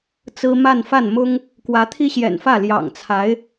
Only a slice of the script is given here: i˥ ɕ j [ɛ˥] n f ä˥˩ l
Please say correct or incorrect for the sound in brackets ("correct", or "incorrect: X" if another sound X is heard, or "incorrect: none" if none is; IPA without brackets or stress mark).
incorrect: ɛ̰˨˩